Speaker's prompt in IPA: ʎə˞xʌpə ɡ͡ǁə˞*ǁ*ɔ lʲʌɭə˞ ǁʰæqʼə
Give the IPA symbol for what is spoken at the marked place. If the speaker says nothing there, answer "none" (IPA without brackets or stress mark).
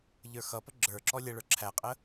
ǁ